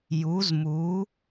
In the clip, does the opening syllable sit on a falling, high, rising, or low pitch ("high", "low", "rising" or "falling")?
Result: rising